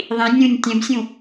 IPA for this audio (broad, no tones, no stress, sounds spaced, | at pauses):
ðˤ ĩ nʲ ũ nʲ tʲ ɛ̃ b sʲ ũ